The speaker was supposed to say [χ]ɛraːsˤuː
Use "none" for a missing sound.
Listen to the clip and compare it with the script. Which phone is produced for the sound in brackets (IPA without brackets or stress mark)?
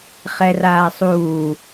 χ